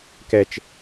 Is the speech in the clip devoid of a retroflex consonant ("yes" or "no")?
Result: yes